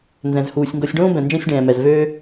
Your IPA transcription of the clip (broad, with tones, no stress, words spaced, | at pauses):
nzɛ̃˩zhuː˩sʲŋɡɔ˨sʲɖõː˥ bɛ̃˩nd͡ʒɛ̃˦sʲɖɛ̃ː˩mɛ˩z vøː˦